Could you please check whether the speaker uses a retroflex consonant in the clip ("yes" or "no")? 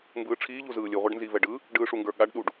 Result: yes